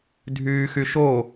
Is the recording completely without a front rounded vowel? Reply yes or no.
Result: no